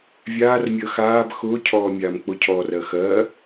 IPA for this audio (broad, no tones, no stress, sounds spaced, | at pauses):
vʲ aː r mʲ əː x aː b x ʊː cʰ ɔː mʲ aː m k͡p ʊ cʰ ɔː r ɜ x ɜ